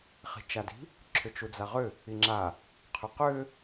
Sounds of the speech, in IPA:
χi̤t͡ʃadi̤ | ǁʰʏt͡ʃud͡zaʁʏ | iŋ͡ǁa | qʰʏqʏ

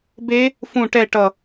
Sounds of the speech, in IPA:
be | fũ ʈɛ ʈʌ

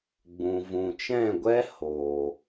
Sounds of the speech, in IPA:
ɡ͡bũ˨ vũ˨t͡ʃɛ̃˦˨ɡʷɛ˦ hoː˨

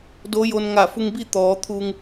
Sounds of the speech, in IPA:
do˧˥jo˧n ŋa˧˩fu˧ŋbi˥˨ t̪ɔː˩˧t̪ʰu˧ŋ

